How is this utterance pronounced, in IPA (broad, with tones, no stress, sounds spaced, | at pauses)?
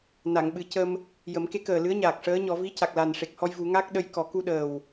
n a˨˩˨ ŋ ɓ ɨ˨˩˦ c ə˧ m | j ə˨˩˦ m k e˧˥ k əː˨˩ l ɨ˧˥ ə̯ ɲ aː˨˩ k̚ ʂ əː˧˥ ɲ ɔ˨˩˦ v i˧˥ c a˨˩ k̚ l a˨˩ n ʂ e˨˩ k̚ h ɔ˧ j v u˨˩˦ ŋ a˦˥ k̚ ɗ ə˧ j k ɔ˨˩˦ k u˧ ɗ əː˨˩ w